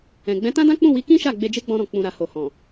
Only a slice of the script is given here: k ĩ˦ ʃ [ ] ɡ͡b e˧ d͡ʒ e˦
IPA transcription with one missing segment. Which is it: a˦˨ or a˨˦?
a˦˨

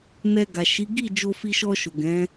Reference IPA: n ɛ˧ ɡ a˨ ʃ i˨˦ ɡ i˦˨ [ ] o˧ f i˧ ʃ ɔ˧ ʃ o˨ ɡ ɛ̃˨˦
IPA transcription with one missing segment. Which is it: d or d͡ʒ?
d͡ʒ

